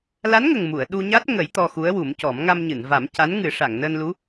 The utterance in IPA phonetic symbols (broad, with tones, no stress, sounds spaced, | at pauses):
l a˧˥ n ŋ ə˨˩ ŋ m u˨˩˨ ə̯ ɗ u˧ ɲ a˦˥ t̚ ŋ ə˨˩˦ j t̪ ɔ˧ x u˧˥ ə̯ w u˨˩˦ m c ɔ˨˩˦ m ŋ a˧ m ɲ ɨ˨˩˨ n v a˨˩˦ m c a˧˥ n ŋ ɨ˨˩˦ ʂ a˨˩˨ ŋ n əː˧ n l u˧˥